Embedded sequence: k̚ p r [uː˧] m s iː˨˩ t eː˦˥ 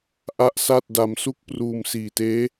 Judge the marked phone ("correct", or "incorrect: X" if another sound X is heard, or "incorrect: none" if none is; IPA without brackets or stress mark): correct